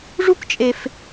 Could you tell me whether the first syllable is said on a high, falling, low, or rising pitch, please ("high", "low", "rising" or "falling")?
high